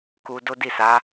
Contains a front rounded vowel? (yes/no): no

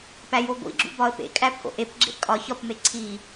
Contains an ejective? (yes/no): yes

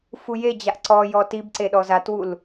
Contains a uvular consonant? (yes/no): no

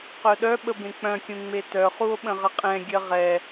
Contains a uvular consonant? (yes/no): yes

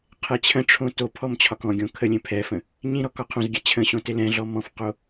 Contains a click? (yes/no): no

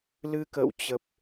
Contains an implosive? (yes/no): no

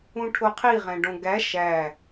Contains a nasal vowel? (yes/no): yes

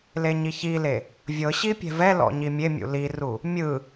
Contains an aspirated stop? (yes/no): no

